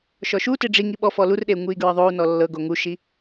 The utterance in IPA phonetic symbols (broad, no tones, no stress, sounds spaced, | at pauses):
ʃ ɔ ʃ u t e ɖ͡ʐ i ŋ i ɓ ɔ f ɔ l u r ɗ e u̯ ŋ u i̯ ɡ ɹ ɤ ðˤ o u̯ n ɔ lː ɤ ɡ o ŋ u ʃ i